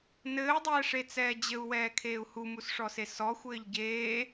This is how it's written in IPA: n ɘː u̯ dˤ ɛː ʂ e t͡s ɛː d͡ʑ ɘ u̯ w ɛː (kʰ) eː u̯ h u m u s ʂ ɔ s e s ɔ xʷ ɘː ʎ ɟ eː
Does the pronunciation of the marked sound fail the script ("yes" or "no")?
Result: no